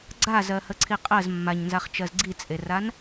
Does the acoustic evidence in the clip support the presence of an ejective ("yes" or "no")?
yes